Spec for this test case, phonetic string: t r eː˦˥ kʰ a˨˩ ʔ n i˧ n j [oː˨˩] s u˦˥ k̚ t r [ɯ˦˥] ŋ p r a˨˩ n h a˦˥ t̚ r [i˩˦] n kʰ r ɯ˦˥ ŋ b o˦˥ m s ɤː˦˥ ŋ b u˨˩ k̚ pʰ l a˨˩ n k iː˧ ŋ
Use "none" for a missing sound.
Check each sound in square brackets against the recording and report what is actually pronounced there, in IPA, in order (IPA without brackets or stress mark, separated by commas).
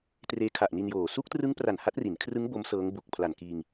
oː˨˩, ɯ˦˥, i˩˦